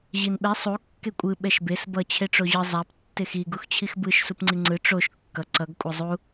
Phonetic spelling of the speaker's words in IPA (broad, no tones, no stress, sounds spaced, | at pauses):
ʑ i n ɓ ɛ sˤ u kː e kʷʼ ɯ ɓ ɛ ʃ b e s b ʌ t͡ɕʰ e ʈ͡ʂ o ʑ ɯ zˤ a p tː e x i ɡ u x t͡ɕʰ i x b ɯ ʃ s u p ŋ͡ǀ i ŋ͡ǀ ɯ ʈ͡ʂ o ʃ kː ʌ ǀ ʌ ɡ kʷʼ ʌ zˤ u